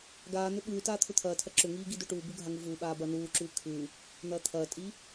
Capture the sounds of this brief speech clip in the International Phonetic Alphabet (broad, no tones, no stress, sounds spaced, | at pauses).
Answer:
ɡ aː n̪ ʏ ɓ ʉː t aː t̪ʰ ʏ t̪ʰ ɐː tʰ ɐ ǁ ʏ ŋ iː ɡ i d ʏː ʈ uː b u ɡʱ a ŋ u v uː ɓ aː b ɐː n uː ǁ ʉː kʰ ʉ | n̪ ɐː t̪ʰ ɐː tʼ i